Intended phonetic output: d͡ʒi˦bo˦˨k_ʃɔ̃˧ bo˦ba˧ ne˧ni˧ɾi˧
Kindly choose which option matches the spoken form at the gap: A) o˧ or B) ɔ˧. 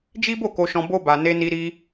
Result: A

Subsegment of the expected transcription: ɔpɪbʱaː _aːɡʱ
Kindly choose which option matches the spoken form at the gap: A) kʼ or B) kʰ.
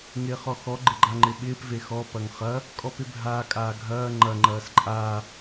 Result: A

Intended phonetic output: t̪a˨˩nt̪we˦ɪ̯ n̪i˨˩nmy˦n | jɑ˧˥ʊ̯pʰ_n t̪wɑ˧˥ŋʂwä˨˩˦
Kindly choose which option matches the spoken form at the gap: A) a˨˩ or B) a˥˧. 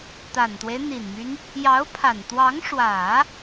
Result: A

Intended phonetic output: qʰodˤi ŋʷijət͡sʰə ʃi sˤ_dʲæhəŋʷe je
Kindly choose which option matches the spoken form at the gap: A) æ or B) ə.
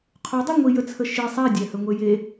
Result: A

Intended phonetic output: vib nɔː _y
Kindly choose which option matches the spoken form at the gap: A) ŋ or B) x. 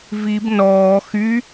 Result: B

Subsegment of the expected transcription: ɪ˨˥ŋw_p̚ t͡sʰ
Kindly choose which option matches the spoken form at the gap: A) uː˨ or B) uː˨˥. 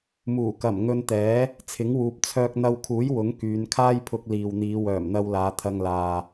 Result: A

